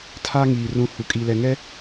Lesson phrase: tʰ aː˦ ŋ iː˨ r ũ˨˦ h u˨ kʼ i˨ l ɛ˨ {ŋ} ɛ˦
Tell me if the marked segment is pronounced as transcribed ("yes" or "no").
yes